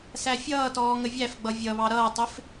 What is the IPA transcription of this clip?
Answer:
sæfʲʌːtɔː ŋəvʲæfɡ͡bʌ vʲʌβɑ ɾʌːtˤɪf

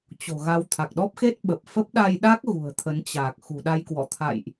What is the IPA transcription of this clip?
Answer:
t͡ɕo̤˨˩ɣa˧w t̪ʰa˨˩k̚ɗɔ˦˥p̚xe˦˥t̚ ɓə˨˩p̚ fə˦˥p̚ɗa˧jɗa˦˥k̚ ɣṳ˨˩ə̯t̪ʰə˨˦nt͡ɕaː˨˩k̚ xṳ˨˩ɗa˧jkwɔ̰˧˨t̪ʰa̰˧˨jʔ

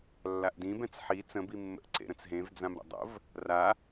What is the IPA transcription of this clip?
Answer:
lːaʔdĩbɛ̃t͡s ħi t͡sə̃bimːə̰ʔǀḛ ɾə̃t͡sɦẽvd͡zãm ɾə̰dˤə̰v | ra

